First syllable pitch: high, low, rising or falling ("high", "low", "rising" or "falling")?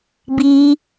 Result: high